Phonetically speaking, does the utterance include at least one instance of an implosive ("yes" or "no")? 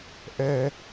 no